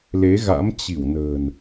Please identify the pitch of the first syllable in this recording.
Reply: rising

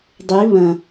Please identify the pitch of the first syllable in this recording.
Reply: rising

